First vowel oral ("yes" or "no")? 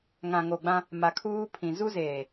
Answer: no